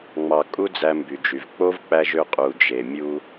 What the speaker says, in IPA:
ŋ͡m ɑ˨ kʼ u˧ d͡z æ˧ m b y˨ d͡ʒ y˨ v k͡p o˦ v k͡p æ˧ ʒ ø˧ qʼ u˨ d͡ʒ e˨ mʲ u˧

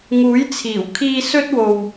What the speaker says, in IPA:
ŋ uː˨˥ j t͡sʰ iː˨˩ w kʰ iː˧ s ɵ˥ t̚ w o˧ w

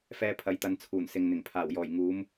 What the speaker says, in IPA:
f ɛː˧ pʰ ɐ˨˥ j t̪ ɐ˨˧ n t͡sʰ uː˨˩ n s ɪ˨ ŋ n̪ ɪ˨˩ ŋ pʰ aː˨˩ w j ɔː˨˩ j ŋ uː˨˧ m

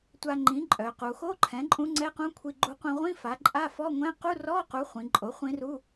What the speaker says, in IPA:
tʷ a˧ ŋ͡ǃ ĩ˩˥ ǃʼ œ˩˧ q u˩˧ x o˧˥˧ ǃʰ ɛ̃˩˥ ǃʼ ũ˧˥ ŋ͡ǀ ɛ˧˥˧ q ũ˧˥˧ kʷʰ i˧ ɡ͡ǃ u˧ qʷ ĩ˧ ʁʷ ĩ˧˥˧ f a˩˥ ǃʼ a˧˥˧ f ɔ˧˥˧ ŋʷ ɛ̃˧˥˧ q u˧˥˧ r ɔ˧˥˧ q u˩˥ χʷ ĩ˩˧ ǃʼ o˩˥ χʷ ĩ˧˥ r u˧˥˧

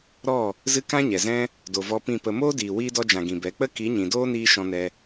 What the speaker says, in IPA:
ɾ ɔ˦˨ | z ɨ˧ k ã˦ ɲ ɛ˨ z ɛ̃˦ | d o˨ v ɔ˧ p ĩ˦˨ p ə˧ m oː˦ d iː˨ w iː˧ d ɔ˧ d͡ʒ ã˨ ɡ ĩ˨ b ɛ˨˦ k͡p ə˦ k i˨˦ ɲ ĩ˨ d oː˦ n iː˧ ʃ ɔ̃˧ n ɛ˧

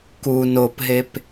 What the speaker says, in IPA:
k u n o p ɦ e p

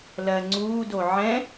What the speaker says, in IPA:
l ɜ ŋ͡ǀ uː d o ʕ ɛ̃

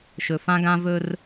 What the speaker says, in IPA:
ʃ ɵ˨ f ã˦ ɡ ã˦ v ɵ˦ r

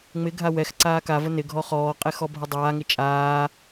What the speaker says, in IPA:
ŋ͡m ɪ ɡʱ a w ɛ x ǀ aː k a v ə n ɪ ɡʱ ɔ χ ɔː qʼ ɛ x ɔ bʱ ə dˤ aː ŋ ɪ t͡ʃʼ aː

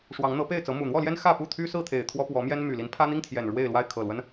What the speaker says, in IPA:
ʂ w ɑ˨˦ ŋ n̪ ɤ˨˦ p e˥˨ ɪ̯ t͡s ɤ˨˦ m u˨˩ n̪ w ɔ˥˨ l j ɛ˦ n x ä˥˨ p u˥˨ t̪ʰ y˦ s ɹ̩˥˨ t̪ʰ e˨˩ ɪ̯ t̪ʰ w ɔ˦ p w ɔ˨˦ m j ɛ˦ n m y˨˩ l i˨˦ n pʰ ä˦ n̪ i˦ ŋ t̪ʰ j ɛ˨˩ n ɻ w e˥˨ ɪ̯ l w a˥˨ ɪ̯ kʰ ɤ˨˩ l w ə˦ n

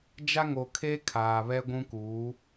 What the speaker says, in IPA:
d͡ʒ a˦ ŋ o˨ kʰ e˦ kʰ aː˨ β ɛ˦ ɡʷ ũ˦ k uː˨˦

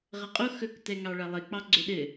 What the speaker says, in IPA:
ʁ ɐ qʼ o x ɵ k t ɛ ŋ ɑ ɭ ɐ lˠ ɘ k͡p ɑ ɡ͡ǀ ɵ ɗ ɘ

